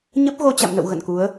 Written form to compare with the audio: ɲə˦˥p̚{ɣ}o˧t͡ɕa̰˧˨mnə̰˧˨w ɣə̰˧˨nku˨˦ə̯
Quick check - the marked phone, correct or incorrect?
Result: correct